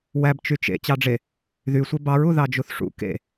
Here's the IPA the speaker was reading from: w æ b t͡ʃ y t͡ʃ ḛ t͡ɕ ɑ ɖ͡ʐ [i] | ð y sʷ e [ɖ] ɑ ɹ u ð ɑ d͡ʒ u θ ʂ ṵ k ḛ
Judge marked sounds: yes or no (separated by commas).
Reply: no, no